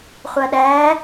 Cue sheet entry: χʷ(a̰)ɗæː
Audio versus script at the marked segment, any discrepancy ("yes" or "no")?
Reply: yes